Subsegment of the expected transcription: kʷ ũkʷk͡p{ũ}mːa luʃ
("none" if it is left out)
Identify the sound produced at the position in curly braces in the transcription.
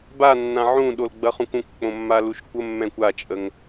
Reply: õ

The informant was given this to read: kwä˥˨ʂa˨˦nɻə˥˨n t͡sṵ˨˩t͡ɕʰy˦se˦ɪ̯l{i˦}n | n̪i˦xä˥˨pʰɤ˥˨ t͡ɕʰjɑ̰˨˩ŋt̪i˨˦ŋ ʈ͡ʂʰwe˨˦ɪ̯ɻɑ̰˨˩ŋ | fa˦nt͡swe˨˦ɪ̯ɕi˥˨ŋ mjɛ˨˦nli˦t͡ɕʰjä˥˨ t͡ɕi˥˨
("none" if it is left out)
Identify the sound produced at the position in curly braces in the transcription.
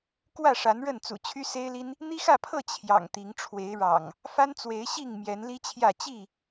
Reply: i˦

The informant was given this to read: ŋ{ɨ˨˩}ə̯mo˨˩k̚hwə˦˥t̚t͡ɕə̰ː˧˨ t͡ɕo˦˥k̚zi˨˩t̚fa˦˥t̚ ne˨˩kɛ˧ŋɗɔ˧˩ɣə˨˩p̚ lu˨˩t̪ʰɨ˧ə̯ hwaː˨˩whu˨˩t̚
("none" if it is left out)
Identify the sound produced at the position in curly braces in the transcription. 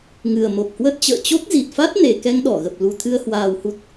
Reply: ɨ˨˩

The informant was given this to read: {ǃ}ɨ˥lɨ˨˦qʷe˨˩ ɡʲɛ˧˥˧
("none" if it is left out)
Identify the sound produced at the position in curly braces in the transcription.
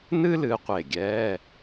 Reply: n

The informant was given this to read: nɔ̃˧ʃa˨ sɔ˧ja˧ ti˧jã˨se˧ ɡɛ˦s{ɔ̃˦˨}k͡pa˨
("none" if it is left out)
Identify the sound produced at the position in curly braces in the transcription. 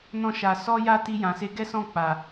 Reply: ɔ̃˦˨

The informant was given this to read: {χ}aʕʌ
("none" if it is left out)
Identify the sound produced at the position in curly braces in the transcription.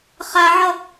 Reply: χ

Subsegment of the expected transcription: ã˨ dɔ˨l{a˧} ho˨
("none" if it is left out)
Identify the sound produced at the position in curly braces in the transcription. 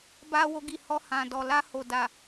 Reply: a˧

